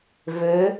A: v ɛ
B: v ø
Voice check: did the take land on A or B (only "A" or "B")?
B